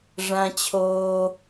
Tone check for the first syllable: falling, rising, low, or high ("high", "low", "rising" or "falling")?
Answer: high